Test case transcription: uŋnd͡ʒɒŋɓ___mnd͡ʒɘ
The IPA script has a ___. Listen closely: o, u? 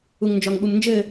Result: u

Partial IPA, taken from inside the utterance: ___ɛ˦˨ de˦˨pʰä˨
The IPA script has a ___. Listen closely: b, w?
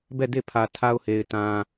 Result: b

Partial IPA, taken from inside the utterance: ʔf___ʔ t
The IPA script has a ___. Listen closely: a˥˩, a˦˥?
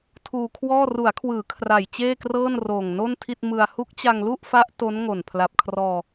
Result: a˦˥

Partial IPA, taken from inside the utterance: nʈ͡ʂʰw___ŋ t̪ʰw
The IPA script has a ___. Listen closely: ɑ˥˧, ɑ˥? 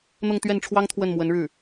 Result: ɑ˥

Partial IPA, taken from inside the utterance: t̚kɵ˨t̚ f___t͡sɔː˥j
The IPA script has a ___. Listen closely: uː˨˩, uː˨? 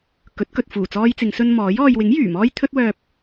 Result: uː˨˩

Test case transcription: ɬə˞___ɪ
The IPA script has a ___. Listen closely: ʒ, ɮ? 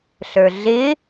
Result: ɮ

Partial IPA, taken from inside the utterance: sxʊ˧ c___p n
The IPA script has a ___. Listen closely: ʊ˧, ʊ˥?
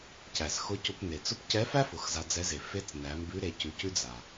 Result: ʊ˧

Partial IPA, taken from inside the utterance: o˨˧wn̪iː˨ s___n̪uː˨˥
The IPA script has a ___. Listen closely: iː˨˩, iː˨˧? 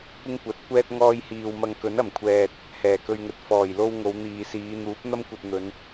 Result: iː˨˧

